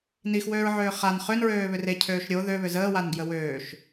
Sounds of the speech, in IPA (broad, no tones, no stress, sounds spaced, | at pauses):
n i x w øː ɹ ʕ øː χ a n χ ø n ɹ øː β ʏ r e cʰ øː ʃ ɾʲ o ð ø β ʏ z əː w a n ɡ j ə w øː ʃ